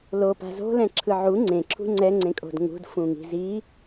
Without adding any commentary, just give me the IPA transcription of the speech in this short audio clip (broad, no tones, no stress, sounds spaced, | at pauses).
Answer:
l o p a̤ z o̤ l ɛ̃ ǁʰ ɯ ʕ u ŋ͡ǀ ẽ ǁʰ ṳ ŋ͡ǀ ɛ ŋ͡ǀ ẽ kʼ o̤ d ŋ ṳ d f ũ ŋ i̤ z i